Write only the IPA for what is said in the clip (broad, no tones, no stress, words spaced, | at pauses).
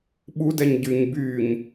ɓudɛɲ ɟyɲ byɲ